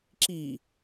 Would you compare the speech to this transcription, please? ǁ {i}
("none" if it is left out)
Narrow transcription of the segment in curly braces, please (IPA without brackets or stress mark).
i